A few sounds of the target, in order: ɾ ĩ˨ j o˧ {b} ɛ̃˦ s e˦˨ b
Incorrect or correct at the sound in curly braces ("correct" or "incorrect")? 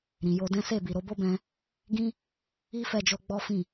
incorrect